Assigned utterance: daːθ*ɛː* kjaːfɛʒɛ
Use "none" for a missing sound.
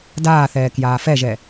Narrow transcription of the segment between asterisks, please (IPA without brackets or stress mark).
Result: ɛː